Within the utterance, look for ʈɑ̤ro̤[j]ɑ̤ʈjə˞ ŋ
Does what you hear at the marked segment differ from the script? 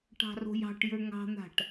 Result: no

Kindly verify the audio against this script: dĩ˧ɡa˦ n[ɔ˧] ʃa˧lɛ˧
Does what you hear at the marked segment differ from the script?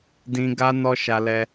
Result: no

